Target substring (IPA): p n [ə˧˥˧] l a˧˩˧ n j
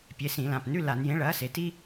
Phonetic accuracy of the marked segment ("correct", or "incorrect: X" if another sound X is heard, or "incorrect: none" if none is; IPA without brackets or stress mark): incorrect: ʉ˧˥˧